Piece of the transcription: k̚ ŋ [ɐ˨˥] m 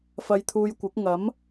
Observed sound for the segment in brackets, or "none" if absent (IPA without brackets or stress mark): ɐ˨˥